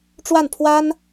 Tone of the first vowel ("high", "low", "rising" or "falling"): falling